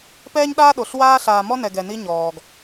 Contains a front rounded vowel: no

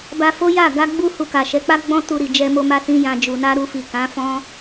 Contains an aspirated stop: no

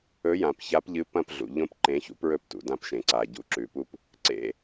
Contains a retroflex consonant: no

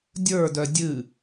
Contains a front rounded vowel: yes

